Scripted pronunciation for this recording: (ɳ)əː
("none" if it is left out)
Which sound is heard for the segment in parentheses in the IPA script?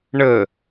ɳ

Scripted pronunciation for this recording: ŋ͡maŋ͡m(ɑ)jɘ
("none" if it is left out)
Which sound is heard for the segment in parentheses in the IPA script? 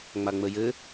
ə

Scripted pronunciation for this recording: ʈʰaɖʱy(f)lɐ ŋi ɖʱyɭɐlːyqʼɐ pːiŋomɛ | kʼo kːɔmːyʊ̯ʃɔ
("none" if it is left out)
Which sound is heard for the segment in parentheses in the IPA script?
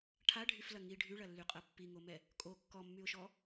f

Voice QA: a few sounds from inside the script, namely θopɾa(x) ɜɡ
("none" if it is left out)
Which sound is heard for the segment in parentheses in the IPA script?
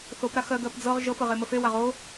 x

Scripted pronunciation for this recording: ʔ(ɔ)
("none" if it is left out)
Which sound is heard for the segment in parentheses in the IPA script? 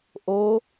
o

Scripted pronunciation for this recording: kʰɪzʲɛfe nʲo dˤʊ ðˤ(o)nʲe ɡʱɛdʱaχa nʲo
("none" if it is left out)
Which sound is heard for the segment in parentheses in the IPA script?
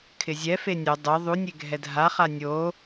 u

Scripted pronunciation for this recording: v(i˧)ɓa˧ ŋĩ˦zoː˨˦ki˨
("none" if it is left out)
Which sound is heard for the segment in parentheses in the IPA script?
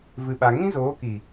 ɨ˧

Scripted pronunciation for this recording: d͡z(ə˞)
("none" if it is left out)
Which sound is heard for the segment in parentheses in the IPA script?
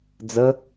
ə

